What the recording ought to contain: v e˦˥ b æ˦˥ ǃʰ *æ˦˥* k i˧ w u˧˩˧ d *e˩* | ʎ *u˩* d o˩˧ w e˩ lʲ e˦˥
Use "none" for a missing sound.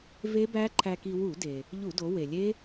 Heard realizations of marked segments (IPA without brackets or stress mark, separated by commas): æ˧, e˩, u˧˩˧